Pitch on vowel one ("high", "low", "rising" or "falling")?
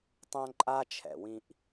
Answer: high